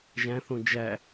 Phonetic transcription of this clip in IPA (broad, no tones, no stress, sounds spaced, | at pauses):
ʒ æ̃ θ õ d͡ʒ æ